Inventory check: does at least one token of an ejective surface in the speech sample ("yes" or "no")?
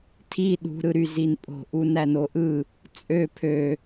yes